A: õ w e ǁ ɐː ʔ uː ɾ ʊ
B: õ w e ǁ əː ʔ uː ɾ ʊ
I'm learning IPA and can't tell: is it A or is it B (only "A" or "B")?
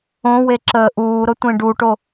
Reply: B